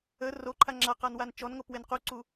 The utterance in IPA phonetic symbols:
ə r o ǃʰ a ŋ͡ǁ a q a n w a n t͡ʃ ɔ n ŋ o p w e n q u ǀ u

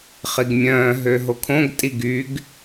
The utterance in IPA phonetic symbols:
χ i ɡ mʲ œ̃ː ɦ ø ɦ o kʰ õ ɡ tʼ i ɡ y ɡ

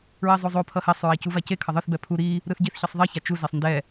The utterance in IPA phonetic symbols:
ɹ e zˤ o zˤ o pʰ ʌ h e sˤ ɹ a c u v a c e kʰ ʌ ðˤ ɯ θ b ɛ pʰ u ɾ i | ɾ ɯ θ ɟ i θ ç ʌ sˤ ðˤ e ç a t͡ʃ u z e sˤ n d ɛ

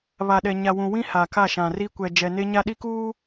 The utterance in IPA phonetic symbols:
β a˨ ɗ ɛ˨ ɲ a˨ w ũ˨ w ĩ˦ h a˨ k a˦˨ ʃ ã˨ r i˦ kʷ ɛ˨ d͡ʒ ɛ˨ n e˦ ɲ a˦ ɗ i˦ k uː˦

